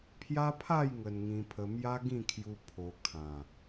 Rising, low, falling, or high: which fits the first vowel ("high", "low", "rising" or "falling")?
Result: high